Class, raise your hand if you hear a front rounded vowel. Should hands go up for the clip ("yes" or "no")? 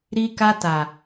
no